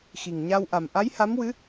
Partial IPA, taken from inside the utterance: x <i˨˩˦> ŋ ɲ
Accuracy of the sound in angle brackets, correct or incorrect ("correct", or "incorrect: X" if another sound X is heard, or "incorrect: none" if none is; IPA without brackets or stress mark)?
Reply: incorrect: i˨˩